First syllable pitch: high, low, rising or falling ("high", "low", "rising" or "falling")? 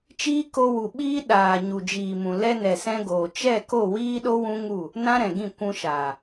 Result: high